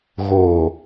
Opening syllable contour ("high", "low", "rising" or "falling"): low